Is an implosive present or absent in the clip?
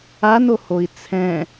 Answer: absent